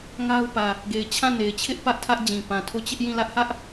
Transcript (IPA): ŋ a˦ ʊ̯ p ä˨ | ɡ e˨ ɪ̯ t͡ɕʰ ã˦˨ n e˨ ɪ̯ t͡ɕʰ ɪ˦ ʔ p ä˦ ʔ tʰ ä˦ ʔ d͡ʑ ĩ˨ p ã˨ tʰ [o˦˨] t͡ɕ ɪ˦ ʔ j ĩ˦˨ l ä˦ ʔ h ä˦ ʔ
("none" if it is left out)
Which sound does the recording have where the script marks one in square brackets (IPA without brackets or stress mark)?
o˦˨